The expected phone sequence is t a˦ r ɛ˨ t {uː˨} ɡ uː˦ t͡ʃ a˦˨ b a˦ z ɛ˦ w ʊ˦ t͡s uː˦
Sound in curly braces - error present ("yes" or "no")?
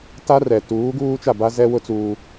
yes